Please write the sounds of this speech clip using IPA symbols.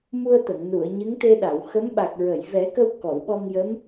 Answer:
mu˧ə̯t̪ə˨˩˨ŋ nu˨˩˨ə̯ ɲɨ˧˥ŋt̪e˧ɗa˨˩˨w xə˧˥mɓa˨˩k̚ ɹə˨˩˨jvɛ˨˩˦kə˧w kɔ˨˩˨wɓɔ˧ŋ jə˧˥m

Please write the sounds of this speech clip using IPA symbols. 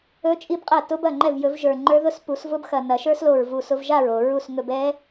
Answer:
ɵ˦˥t͡ʃʼi˦˥bqʼɐ˥˩ tʊ˦˥bɐ˥˩ ŋ͡ǃɛ˥˩vjɵ˨˩˦vʒə˞˨˩ŋ͡ǃə˞˦˥ ðʊ˦˥spu˨˩˦svʊ˦˥bxɐ˨˩ nɐ˨˩˦ʃə˞˦˥slo˨˩ɹ vu˨˩s ʊ˧v ʒa˥˩ɹo˨˩ ɹu˥˩sŋɵ˧b ɛ˦˥

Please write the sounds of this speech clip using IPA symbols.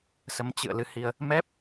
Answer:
sə˨˦mt͡ɕɨ̰˧˨ə̯ lɨ˧hi˧ə̯ | mɛ˦˥p̚

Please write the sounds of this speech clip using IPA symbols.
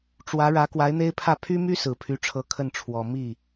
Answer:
ʈ͡ʂwä˧˥ɻä˧˥ kwa˧˥ɪ̯n̪e˥ɪ̯pʰä˥˩ pʰy˥my˥ sɹ̩˨˩pʰy˧˥ʈ͡ʂʰɤ˧˥ kʰə˥˩nʈ͡ʂʰwɔ˨˩ mi˥˩

